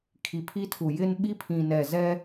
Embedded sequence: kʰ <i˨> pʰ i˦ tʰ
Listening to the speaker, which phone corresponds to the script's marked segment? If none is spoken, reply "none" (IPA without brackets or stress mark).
i˨